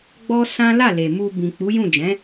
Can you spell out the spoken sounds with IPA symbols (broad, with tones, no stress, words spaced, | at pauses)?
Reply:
ɡ͡bɔ˦sã˦ la˦˨le˨mu˧ bĩ˨k͡pu˨˦jũ˦˨ d͡ʒɛ̃˨˦